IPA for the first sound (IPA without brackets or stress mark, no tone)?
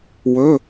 w